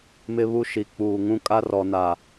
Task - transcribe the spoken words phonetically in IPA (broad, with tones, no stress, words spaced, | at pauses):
mɪ˦βu˦ ʃi˨k͡puː˨ŋũ˦ kʼa˦rɔ˨na˨